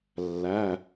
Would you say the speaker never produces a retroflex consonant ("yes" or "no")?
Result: yes